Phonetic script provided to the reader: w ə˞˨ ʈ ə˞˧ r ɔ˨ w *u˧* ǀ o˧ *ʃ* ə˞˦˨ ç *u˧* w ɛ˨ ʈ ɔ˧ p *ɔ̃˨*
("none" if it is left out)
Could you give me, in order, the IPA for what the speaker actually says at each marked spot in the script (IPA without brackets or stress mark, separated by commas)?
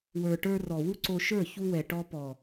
u˦, ʃ, u˧, ɔ˨